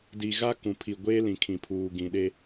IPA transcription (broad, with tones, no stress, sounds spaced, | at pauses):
d i˨ ɣ a˦ k ũ˨ pʰ i˨ ɡʷ eː˦ l ĩ˨ kʰ ĩ˨ pʰ uː˨ ɡ ĩ˨ ɗ e˦